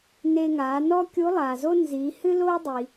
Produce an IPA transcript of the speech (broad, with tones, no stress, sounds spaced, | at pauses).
n e˧ ŋ aː˩˧ n ɔ˥ kʲ u˧˥ lˠ aː˩ z o˥ n z iː˩˧ h ɨ˥ l oː˥ dˤ i˩